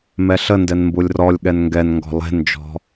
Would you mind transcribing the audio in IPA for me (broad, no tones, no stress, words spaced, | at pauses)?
mɛɬəndɛn mbulʲrɔlʲɠɛn ŋɡɛnŋɡɔ̤ lˠe̤nd͡ʒɔ̤